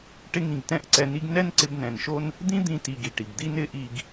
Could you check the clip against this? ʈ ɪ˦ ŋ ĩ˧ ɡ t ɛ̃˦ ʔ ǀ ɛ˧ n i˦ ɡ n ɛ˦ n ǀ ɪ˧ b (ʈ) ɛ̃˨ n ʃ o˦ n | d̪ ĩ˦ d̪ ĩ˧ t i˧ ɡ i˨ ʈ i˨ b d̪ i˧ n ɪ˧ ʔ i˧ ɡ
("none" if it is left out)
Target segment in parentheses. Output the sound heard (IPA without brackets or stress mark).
n